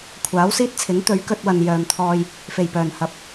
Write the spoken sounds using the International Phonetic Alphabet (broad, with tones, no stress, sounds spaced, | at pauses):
kʷʰ aː˨˥ w s iː˥ t̚ t͡sʰ ɪ˨˥ ŋ t̪ ɵ˨˥ ɥ k ɵ˧ t̚ w ɐ˨ n j œː˨ m t̪ʰ ɔː˧ j | f e˨˩ j p œː˨˩ n h ɐ˨˥ p̚